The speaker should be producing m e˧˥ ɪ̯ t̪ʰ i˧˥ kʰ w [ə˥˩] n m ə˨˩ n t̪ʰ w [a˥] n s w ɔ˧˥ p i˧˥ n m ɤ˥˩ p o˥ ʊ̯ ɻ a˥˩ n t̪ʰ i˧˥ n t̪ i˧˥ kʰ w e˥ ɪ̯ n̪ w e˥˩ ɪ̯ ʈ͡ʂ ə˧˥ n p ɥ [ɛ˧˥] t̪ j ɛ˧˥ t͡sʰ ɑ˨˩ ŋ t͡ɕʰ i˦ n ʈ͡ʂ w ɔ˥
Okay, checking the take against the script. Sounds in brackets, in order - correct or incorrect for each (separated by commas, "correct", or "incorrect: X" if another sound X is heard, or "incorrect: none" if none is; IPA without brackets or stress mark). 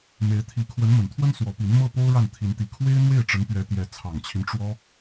incorrect: ə˧˥, incorrect: ə˥, correct